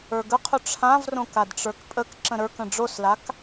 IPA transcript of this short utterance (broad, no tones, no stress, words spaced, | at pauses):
ə˞ɡəqʰʊ ʈ͡ʂʰãvrõk adʈ͡ʂə˞kpʼək ǁə̃ɾə˞kə̃ ɖ͡ʐoslak